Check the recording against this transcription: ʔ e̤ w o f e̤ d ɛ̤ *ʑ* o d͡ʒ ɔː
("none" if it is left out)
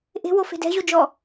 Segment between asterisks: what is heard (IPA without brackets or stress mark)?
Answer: ʑ